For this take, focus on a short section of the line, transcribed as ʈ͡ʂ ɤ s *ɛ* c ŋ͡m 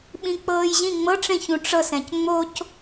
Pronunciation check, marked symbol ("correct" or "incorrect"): incorrect